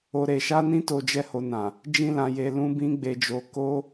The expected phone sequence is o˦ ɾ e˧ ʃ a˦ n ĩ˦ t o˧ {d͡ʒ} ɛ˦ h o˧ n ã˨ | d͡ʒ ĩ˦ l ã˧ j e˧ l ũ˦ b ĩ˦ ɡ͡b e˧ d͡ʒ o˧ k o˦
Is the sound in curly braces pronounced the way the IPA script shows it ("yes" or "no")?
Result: yes